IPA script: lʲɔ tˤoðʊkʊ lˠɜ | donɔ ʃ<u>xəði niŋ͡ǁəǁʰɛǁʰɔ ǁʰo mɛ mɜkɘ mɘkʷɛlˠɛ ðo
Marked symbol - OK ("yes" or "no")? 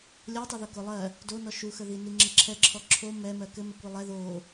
yes